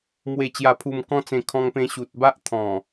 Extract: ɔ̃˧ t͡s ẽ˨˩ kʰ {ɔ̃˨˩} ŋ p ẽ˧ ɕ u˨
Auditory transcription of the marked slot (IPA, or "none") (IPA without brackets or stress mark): ɔ̃˧